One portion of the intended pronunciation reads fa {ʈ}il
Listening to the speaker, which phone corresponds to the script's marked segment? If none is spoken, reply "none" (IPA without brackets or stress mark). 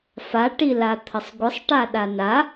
ʈ